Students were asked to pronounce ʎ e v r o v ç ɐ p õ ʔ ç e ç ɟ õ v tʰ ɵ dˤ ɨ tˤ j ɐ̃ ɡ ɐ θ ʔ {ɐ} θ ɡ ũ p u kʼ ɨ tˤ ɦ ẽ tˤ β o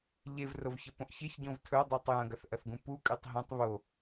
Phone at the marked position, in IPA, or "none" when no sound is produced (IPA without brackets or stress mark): ɐ